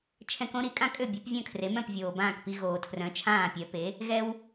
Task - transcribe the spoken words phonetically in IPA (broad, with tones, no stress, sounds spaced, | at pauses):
t͡ʃʰ ɛ̃˧ k õ˥ ɾ i˩˥ kʼ ã˥ kʼ ø˥˩ bʲ e˩˥ p vʲ œ̃˥˩ kʰ r e˩˥ m œ̃˥˩ p vʲ oː˩ b ãː˥˩ k p i˧ ɣ oː˩ tʰ r œ̃˩˥ t͡ʃʰ ãː˥˩ pʲ œ˩˥ p e˩˥ | ɣ ɛ˧ w